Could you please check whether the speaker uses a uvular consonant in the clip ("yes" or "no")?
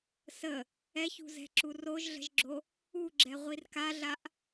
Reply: yes